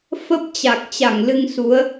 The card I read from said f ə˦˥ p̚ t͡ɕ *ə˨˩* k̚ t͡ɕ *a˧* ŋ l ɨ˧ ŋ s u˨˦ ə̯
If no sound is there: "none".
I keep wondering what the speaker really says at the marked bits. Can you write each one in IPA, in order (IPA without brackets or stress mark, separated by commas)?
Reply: a˨˩, a˧˩